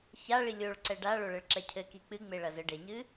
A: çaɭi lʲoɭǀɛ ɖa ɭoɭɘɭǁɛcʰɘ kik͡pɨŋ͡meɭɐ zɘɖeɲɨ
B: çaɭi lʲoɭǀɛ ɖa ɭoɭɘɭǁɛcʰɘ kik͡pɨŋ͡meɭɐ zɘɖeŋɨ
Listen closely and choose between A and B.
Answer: A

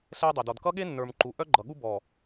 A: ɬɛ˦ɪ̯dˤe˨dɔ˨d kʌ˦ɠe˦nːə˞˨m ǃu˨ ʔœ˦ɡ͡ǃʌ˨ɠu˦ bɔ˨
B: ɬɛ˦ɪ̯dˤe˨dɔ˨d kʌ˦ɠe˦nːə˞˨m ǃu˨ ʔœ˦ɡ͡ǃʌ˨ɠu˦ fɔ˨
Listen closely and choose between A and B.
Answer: A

